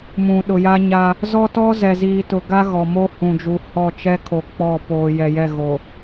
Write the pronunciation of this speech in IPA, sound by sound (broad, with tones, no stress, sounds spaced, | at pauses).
m ũ˨ ɗ ʊ˨ j a˦ ɲ a˦ | z ɔ˦ t ɔ˦ z ɛ˨ z iː˨ t ʊ˨ ɡ a˦ ɣ ɔ˨ m o˦ h ũ˨ d͡ʒ u˨ h ɔ˦˨ t͡ʃ ɛ˦ kʰ o˨ k͡p ɔ˦˨ p oː˨ j ɛ˨ j ɛ˦˨ ɣ o˨